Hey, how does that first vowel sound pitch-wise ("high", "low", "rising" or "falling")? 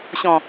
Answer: low